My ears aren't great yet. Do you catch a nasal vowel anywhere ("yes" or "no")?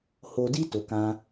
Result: yes